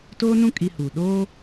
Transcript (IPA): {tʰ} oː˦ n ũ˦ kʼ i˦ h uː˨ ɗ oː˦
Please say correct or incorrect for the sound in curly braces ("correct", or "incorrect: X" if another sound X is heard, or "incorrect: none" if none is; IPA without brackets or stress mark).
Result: incorrect: t